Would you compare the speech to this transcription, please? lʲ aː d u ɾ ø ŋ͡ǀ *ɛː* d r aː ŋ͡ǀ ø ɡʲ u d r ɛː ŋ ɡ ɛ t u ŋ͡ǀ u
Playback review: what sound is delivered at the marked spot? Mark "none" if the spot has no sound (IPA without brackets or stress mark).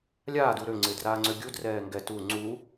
ɪː